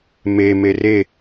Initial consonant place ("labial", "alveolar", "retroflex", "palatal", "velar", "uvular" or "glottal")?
labial